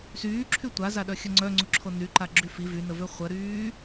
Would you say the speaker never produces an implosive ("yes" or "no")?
no